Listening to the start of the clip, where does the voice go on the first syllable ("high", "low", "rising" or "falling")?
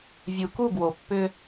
low